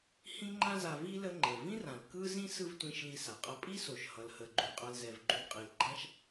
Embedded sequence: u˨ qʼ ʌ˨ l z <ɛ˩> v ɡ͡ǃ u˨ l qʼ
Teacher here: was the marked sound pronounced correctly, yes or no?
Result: yes